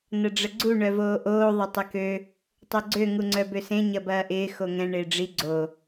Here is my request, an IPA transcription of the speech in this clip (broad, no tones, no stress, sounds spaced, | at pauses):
n ɐ ɖ͡ʐ ə ɡ͡ǀ u ɳ œ v oː ʔ oː ðˤ ɪ tˤ ə k ø | tˤ ø ɡ͡ǀ ø ŋ u ŋ͡ǀ œ b ø s ẽ ɲ ɐ b ɐː ʔ ɪː x o ŋ ɛ̃ ɳ ɪː ɖ͡ʐ i ɡ͡ǀ o